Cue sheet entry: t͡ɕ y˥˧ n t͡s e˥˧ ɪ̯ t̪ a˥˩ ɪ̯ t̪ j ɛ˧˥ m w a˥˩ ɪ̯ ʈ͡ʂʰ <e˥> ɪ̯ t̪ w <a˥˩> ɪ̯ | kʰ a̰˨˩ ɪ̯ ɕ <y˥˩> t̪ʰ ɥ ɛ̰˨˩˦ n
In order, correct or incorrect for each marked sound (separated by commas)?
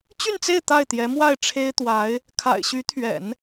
correct, incorrect, incorrect